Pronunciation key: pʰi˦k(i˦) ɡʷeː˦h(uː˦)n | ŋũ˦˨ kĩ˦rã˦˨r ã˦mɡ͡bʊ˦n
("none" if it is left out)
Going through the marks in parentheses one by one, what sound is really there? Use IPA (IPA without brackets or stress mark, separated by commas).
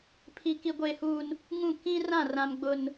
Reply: i˦, uː˦